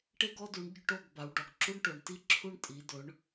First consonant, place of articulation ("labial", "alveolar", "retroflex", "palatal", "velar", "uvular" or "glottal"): retroflex